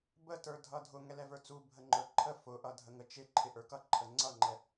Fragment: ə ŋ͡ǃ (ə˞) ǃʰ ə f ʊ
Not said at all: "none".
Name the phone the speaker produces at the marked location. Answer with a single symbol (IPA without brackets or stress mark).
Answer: ə˞